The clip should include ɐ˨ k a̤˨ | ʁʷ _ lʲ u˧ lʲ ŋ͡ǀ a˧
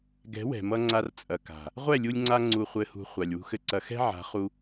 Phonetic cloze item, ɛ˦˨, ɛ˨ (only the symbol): ɛ˦˨